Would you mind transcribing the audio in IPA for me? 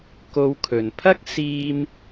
k o˧ w kʰ ɵ˨ n pʰ ɐ˥ k̚ s iː˧ m

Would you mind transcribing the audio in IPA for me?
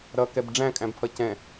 ɾ ʌ k ɛ b ɖ͡ʐ æ̃ kʼ æ̃ b pʰ ʌ c ɛ̃

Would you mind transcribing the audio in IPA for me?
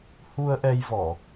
h u˧ ə̯ ʔ ɛ˧ j v ɔ˧˩˨

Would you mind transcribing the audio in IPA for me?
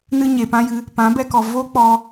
n ɨ˧ ɲ e˨ p ã˦ j ɨ˧ | p ã˨˦ b ɛ˧ k ɔ˨ v o˦ k͡p ɔ˧

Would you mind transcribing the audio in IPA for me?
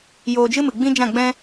j oː˧ d͡ʒ ɨ˦ m ɨ˨ ɡ͡b ĩ˦ d͡ʒ ã˦˨ ɡ͡b ɛ̃˦

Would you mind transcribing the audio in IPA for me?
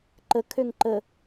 ǃ ə kʰ ø ŋ ǃ ə

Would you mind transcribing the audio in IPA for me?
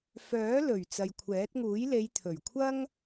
f œː˨˥ l ɵ˨˩ ɥ t͡s ɐ˨ j kʷʰ ɛː˨˥ t̚ ŋ uː˨˥ j l e˨˧ j t̪ʰ ɵ˨˩ ɥ kʷʰ ɐ˥ ŋ

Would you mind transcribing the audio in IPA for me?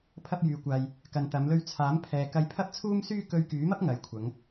pʰ ɐ˥ p̚ j yː˧ kʷ aː˧ j | k ɐ˨ n t̪ ɐ˨˧ m l ɵ˧ ɥ t͡sʰ aː˨˥ m pʰ ɛː˨ k ɐ˧ j pʰ ɐ˥ p̚ t͡sʰ uː˥ m s yː˥ k ɵ˧ ɥ k yː˨˥ m ɐ˥ p̚ ŋ ɐ˨˧ j kʷʰ ɐ˨˧ ŋ

